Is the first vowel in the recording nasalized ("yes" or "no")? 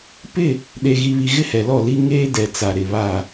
no